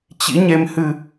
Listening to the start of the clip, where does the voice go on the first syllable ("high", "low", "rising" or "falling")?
rising